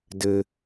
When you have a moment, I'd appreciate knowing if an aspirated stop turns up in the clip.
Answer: no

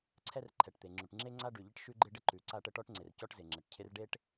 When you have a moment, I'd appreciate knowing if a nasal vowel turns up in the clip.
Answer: no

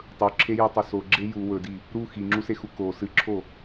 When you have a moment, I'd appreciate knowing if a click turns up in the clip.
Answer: yes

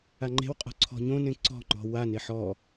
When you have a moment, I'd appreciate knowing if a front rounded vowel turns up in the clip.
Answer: no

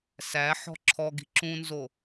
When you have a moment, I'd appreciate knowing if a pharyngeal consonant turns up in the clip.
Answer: yes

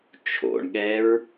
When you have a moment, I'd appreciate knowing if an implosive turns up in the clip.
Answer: yes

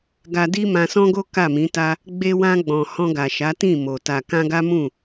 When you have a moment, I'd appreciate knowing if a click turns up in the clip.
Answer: no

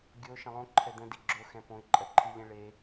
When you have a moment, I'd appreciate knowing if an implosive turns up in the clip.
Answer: no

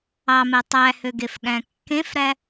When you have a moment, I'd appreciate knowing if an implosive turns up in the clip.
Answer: yes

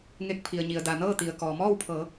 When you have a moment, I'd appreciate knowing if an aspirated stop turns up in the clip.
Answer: yes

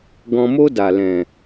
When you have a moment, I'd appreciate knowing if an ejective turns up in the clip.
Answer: no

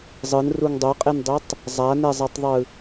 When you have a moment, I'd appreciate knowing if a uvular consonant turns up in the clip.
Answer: yes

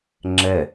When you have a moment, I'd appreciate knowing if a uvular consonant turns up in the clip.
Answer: no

